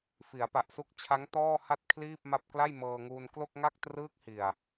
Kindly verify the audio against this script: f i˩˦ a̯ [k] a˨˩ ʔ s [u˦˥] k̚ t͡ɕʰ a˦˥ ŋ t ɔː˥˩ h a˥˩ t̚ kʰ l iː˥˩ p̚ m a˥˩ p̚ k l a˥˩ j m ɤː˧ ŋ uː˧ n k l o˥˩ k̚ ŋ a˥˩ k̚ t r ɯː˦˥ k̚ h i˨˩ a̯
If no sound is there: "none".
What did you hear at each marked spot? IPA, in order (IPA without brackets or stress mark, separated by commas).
p, u˦˥